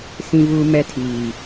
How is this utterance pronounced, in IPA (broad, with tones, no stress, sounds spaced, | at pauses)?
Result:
s ĩ˦ v uː˦ m ɛ˦ tʰ iː˨